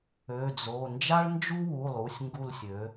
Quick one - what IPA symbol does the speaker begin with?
ø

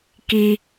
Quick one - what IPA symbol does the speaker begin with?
k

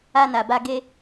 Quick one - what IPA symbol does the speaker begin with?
a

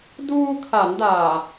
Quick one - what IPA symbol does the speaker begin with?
d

